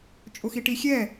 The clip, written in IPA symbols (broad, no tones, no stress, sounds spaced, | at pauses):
t͡ʃʼ ʊ x i ʈ i xʲ ɛ